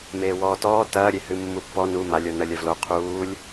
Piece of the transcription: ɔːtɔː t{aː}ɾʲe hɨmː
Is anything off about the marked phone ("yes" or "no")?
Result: yes